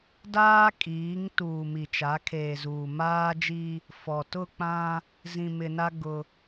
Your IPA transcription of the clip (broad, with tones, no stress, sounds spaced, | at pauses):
d aː˦ kʼ iː˨˦ ŋ t uː˨ m i˨ t͡ʃ a˨˦ kʰ eː˨ z uː˨ m aː˦ d͡ʒ i˦ | f ɔ˨ t ʊ˦˨ k͡p ã˦ | z ĩ˨ m ɪ˨ n a˦ ɡ ʊ˦